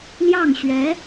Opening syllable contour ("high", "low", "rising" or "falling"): falling